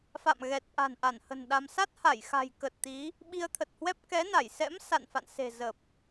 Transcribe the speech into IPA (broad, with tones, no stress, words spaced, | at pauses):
fa̰˧˨m ɣɛ˨˩t̚ʔa̤˨˩nʔa˧˩nhə̤˨˩n ɗa˧m sa˦˥t̚ha˧˩jxa̤˨˩jkə˨˩t̚ t̪i˨˦ | ɓi˧ə̯t̪ʰə˨˩t̚hwɛ˦˥p̚ kɛ˨˦na˧˩jsɛ̰˧˥m sa̰˧˨nfa̰˧˨nse̤˨˩ zə˨˩p̚